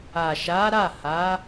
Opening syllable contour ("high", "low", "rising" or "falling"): low